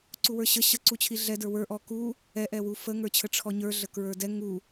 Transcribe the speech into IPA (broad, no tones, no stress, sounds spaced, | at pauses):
ǀ u w ə˞ ɕ ə ɕ ə ǀ u t͡ɕʰ i ɮ ɛ d ə˞ w ə˞ ʔ ɔ k u | ɛ ʔ ɛ w u f ə ŋ ə˞ t͡ɕʰ ə ʈ͡ʂʰ ɔ ɲ ə˞ ɮ ə k ɹ ə˞ d ɛ ŋ u